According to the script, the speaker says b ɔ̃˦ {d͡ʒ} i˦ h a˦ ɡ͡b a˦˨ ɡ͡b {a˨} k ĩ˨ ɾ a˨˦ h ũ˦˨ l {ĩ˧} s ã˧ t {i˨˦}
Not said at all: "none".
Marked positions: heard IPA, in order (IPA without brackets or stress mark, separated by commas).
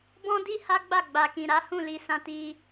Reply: d, a˨, i˧, i˧